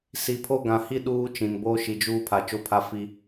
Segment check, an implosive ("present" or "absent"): present